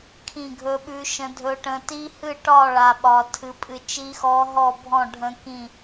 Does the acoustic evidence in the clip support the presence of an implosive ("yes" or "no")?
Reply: yes